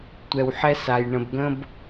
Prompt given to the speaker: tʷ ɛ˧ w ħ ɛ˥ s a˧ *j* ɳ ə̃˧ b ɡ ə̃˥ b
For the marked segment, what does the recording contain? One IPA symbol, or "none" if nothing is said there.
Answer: j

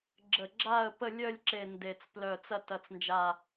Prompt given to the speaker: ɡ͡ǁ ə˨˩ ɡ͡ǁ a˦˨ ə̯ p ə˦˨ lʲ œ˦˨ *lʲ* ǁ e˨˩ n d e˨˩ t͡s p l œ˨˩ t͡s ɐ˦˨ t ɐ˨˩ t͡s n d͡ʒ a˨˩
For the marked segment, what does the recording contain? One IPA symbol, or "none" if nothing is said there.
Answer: lʲ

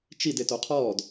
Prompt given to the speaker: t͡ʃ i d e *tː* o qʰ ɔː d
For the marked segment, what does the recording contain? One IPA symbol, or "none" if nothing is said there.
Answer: t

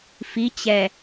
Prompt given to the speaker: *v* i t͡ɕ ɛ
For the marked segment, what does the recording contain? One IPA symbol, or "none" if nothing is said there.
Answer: f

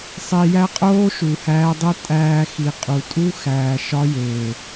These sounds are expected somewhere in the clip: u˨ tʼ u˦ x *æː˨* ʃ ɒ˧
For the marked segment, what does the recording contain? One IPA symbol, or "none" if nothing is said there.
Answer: æː˨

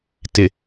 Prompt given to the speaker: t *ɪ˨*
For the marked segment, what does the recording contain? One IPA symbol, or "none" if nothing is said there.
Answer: ɪ˨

